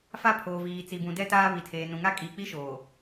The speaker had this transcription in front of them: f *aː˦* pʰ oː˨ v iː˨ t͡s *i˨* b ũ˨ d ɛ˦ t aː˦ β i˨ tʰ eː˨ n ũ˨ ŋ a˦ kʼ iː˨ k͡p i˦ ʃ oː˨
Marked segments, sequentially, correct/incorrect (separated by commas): incorrect, correct